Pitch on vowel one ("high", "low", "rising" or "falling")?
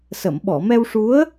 low